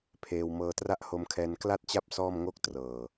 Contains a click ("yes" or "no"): no